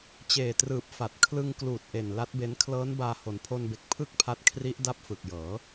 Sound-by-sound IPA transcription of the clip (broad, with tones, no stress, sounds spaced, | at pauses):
t͡ɕ eː˨˩ t r ɯː˨˩ p̚ f a˨˩ t̚ kʰ l ɯ˧ ŋ k l uː˨˩ t̚ ʔ e˨˩ n l a˦˥ t̚ b e˦˥ n kʰ l ɤː˦˥ n b aː˧ h o˩˦ n pʰ o˧ n b e˨˩ k̚ pʰ ɯ˥˩ k̚ pʰ a˦˥ t̚ kʰ r i˦˥ ʔ d a˦˥ p̚ f ɯ˨˩ k̚ j ɤː˩˦